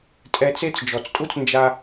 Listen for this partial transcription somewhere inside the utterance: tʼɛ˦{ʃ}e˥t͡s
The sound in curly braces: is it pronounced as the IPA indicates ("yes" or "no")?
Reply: no